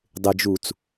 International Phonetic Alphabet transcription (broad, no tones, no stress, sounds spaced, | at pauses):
dˤ ɪ d͡ʒ u t͡s